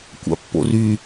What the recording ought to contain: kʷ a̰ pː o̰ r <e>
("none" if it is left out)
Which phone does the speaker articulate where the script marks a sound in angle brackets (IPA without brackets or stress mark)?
y